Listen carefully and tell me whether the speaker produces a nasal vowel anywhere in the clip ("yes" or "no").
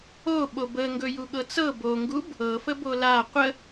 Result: no